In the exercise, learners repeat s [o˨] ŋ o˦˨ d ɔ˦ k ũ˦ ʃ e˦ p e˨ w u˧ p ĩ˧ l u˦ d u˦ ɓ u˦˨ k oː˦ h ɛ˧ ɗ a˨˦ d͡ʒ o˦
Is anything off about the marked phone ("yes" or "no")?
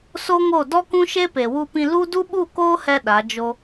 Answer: yes